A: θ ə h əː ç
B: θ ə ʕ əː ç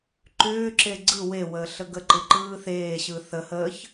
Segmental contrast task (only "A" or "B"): A